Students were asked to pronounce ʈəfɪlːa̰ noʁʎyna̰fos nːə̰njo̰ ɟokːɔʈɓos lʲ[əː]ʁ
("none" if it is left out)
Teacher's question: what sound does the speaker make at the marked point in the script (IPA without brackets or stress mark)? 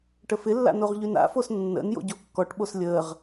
əː